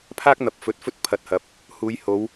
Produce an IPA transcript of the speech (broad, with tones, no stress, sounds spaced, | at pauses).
pʰ aː˥ k̚ n̪ ɐ˨ p̚ f ɵ˨˥ t̚ f ɵ˥ t̚ pʰ ɐ˨˥ t̚ h ɐ˨˥ p̚ | h uː˨˧ j h o˨˧ w